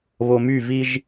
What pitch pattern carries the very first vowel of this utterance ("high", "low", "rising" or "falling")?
low